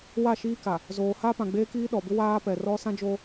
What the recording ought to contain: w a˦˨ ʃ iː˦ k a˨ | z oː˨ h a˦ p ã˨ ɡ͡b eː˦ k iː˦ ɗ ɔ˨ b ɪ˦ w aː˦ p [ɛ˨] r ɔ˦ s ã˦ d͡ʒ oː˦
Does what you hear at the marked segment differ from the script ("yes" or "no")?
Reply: no